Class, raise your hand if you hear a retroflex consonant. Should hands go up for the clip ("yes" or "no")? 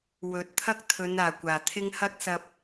no